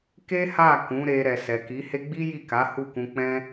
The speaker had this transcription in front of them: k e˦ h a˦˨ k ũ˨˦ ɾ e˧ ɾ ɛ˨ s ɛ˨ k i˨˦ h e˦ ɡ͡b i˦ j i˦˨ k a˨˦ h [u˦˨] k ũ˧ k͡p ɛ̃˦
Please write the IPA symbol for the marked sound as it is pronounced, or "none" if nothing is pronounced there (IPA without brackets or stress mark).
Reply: u˦˨